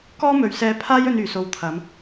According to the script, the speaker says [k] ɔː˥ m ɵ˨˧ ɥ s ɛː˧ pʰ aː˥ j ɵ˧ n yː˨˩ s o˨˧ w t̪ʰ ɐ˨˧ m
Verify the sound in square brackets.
correct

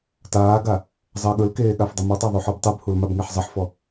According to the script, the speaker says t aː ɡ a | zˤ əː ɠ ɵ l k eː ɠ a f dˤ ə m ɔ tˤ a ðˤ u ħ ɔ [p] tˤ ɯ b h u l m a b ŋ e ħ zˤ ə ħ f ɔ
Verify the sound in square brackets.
incorrect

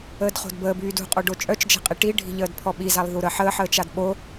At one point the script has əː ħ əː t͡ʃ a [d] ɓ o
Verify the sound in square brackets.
correct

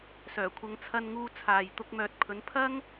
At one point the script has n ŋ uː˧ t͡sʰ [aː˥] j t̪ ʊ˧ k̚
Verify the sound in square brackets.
incorrect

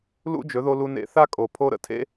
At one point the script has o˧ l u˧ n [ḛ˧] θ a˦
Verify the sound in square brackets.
correct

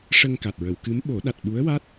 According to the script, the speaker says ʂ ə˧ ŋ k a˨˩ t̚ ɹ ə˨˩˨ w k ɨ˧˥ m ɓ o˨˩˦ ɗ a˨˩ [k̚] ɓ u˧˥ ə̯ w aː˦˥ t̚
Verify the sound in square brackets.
incorrect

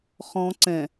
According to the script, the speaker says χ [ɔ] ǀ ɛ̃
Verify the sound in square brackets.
incorrect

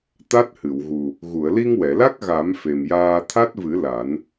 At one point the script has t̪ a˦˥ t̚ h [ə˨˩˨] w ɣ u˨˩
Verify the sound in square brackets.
incorrect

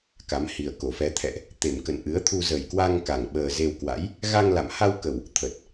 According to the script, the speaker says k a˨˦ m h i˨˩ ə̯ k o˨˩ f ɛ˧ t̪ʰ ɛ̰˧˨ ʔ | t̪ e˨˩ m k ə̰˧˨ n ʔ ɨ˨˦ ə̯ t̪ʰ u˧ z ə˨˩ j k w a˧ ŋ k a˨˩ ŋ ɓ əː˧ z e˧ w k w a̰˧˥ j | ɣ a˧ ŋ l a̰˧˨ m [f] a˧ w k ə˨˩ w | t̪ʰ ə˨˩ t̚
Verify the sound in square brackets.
incorrect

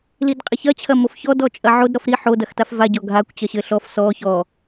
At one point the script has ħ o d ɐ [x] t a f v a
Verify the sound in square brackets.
correct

